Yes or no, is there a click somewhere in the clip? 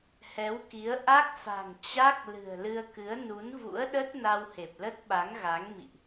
no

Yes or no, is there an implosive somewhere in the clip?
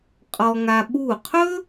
yes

